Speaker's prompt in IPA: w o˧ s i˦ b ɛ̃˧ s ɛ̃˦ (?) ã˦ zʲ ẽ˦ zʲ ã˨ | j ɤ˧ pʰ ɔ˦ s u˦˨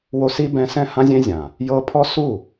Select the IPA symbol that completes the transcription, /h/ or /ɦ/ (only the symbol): h